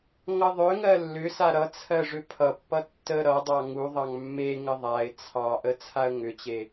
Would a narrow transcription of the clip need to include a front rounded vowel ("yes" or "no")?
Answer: yes